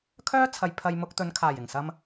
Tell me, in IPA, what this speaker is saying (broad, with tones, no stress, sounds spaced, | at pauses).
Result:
kʰ œː˥ t͡sʰ ɐ˨ j pʰ ɐ˧ j m ʊ˧ k̚ t̪ ɵ˨˧ n kʰ aː˨˩ j ɪ˨˩ ŋ s ɐ˧ m